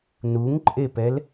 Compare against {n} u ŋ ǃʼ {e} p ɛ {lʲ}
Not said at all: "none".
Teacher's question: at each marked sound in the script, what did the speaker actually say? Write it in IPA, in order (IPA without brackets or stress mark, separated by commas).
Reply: n, e, l